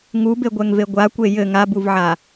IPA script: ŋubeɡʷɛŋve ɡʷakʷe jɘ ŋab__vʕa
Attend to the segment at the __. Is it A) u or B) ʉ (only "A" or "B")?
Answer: A